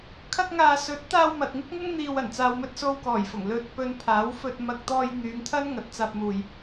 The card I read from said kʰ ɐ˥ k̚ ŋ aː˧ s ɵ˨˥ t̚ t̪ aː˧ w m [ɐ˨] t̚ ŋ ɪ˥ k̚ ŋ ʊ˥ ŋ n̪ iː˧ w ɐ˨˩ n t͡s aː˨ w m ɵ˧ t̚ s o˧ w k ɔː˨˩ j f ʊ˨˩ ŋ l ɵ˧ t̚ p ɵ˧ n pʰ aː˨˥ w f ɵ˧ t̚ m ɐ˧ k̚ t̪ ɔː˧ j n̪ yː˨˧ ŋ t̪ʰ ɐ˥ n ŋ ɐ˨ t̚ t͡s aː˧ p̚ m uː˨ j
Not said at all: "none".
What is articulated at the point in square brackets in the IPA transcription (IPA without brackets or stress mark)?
ɐ˨